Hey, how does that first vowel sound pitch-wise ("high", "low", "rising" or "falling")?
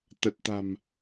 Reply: low